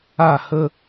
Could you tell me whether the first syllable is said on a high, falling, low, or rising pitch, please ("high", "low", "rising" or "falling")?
falling